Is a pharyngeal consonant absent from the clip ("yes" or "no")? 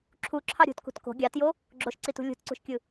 yes